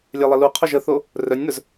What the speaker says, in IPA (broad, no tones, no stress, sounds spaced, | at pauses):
lʲ ɛ lˠ ə l u qʰ o ʒ ə θ o | r œ nʲ n̪ œ z